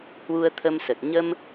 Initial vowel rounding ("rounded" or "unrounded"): rounded